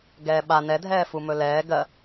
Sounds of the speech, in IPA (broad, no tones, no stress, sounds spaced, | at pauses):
ɡ ɛː ɓ a n ɛ dʱ ɛː f u m ɵ l ɛː ɡ ɜ